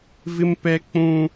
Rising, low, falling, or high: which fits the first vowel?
high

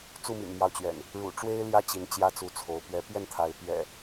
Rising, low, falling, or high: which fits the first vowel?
falling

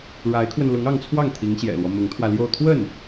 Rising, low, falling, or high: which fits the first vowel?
rising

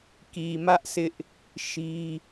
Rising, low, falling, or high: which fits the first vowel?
low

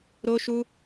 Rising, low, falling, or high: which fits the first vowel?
high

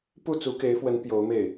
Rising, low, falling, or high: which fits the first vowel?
falling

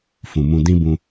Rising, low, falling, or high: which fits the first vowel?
low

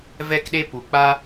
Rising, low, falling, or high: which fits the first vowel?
high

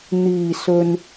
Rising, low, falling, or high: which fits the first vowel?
low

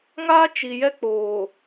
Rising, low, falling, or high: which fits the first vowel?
high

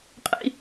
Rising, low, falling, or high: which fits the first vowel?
high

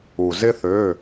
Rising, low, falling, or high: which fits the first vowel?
low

